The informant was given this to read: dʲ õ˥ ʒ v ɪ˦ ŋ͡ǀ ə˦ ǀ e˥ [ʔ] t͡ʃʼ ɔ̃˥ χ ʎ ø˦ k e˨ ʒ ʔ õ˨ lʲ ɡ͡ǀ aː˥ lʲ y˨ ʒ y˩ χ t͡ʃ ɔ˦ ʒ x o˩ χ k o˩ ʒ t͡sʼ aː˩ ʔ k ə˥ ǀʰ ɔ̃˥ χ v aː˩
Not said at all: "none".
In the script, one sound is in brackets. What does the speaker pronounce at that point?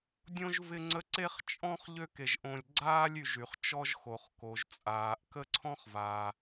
χ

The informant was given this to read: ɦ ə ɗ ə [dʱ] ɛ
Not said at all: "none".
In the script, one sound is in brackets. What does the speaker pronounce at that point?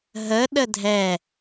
dʱ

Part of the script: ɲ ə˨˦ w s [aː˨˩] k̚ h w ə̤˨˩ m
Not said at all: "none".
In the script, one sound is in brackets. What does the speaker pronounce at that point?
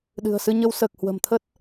əː˨˩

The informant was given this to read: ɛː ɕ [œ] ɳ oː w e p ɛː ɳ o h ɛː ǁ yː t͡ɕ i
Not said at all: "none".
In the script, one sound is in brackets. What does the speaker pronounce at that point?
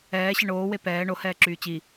ɛ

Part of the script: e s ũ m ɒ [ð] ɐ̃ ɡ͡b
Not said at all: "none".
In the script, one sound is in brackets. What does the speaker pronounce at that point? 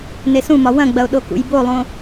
w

